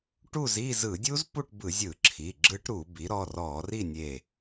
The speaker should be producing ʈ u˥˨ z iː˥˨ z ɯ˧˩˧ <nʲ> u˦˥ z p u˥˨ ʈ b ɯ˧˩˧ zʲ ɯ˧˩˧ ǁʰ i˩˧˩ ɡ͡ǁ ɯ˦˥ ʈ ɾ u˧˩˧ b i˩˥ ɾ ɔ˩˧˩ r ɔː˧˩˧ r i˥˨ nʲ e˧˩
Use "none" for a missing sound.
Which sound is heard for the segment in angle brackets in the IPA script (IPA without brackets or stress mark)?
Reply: dʲ